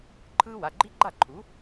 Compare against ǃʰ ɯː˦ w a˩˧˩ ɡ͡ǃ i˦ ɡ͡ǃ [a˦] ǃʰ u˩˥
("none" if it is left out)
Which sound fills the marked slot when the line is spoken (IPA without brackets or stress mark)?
a˥˩